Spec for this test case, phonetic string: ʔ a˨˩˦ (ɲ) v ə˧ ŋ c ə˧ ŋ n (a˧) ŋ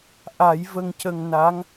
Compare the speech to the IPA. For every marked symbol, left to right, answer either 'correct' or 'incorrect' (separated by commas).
incorrect, incorrect